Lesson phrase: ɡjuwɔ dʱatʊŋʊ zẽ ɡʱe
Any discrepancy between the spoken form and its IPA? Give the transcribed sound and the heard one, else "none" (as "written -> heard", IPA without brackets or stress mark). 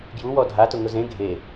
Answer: none